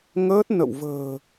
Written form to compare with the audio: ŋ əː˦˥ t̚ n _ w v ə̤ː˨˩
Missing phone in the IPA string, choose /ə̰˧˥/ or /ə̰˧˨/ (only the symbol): ə̰˧˨